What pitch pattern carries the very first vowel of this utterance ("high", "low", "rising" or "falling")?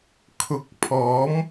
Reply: low